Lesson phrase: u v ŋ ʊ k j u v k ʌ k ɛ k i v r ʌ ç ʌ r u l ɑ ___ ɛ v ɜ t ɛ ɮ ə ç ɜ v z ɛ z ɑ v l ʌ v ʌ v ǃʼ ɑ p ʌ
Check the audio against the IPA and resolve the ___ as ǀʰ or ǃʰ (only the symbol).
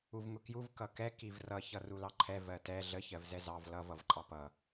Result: ǃʰ